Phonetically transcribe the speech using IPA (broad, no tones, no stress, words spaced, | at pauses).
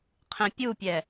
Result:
qʰẽpʲupʲɛ